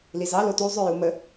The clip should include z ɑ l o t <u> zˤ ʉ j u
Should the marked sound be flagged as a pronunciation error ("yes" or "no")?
no